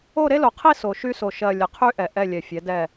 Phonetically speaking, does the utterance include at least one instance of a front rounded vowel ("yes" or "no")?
yes